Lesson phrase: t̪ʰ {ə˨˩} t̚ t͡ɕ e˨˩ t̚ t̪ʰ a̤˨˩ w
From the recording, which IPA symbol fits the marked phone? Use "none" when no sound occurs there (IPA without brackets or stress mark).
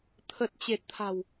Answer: ə˨˩